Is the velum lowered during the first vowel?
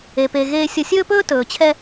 no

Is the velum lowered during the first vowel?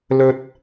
no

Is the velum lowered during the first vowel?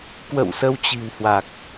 no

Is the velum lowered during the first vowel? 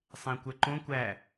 yes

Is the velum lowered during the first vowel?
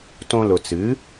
yes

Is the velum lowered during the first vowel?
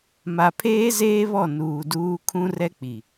no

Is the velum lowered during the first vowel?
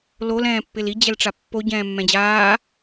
no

